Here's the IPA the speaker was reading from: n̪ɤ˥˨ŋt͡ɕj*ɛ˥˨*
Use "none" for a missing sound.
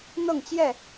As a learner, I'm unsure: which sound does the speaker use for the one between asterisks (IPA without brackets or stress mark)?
ɛ˥˨